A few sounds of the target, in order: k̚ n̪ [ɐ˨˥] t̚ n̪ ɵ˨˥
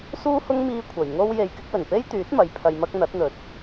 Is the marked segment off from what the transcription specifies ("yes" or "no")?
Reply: no